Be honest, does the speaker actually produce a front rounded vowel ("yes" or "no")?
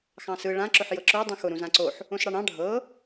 no